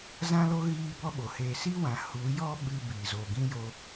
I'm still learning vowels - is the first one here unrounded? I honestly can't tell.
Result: yes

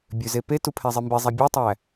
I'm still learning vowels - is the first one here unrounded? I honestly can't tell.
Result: no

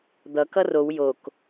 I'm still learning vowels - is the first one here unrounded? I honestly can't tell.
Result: yes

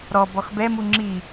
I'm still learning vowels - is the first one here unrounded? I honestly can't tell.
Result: no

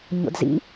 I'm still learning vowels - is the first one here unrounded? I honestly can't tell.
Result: no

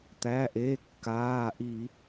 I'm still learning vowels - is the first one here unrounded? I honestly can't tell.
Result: yes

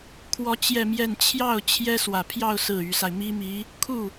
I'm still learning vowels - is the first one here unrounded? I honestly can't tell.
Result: no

